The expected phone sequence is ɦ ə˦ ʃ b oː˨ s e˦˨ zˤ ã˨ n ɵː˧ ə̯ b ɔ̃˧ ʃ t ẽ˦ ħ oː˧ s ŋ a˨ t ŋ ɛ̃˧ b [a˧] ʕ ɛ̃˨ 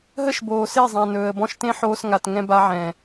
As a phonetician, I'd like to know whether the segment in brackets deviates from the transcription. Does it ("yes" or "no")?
no